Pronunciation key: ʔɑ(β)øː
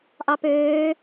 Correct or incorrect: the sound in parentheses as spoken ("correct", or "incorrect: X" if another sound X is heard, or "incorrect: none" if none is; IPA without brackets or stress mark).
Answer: incorrect: p